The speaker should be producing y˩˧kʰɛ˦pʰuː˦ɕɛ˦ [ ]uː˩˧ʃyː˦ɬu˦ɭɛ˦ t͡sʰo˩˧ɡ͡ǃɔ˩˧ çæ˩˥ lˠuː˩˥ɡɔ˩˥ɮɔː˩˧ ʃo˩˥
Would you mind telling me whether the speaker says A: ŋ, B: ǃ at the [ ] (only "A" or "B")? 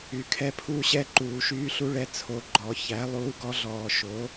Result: B